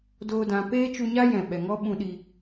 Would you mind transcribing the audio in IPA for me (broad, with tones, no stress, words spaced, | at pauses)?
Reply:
doː˦dã˧ peː˦t͡ʃu˧ɲa˦ jɛ̃˨ɓɛ˨ ŋɔ˦ɓũ˧ɗi˧